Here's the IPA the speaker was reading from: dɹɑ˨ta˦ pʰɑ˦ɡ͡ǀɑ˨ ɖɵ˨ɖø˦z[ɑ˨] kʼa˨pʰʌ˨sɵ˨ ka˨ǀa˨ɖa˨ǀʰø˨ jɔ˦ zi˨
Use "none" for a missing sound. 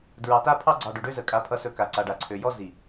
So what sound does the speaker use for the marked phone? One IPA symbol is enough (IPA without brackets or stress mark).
ə˨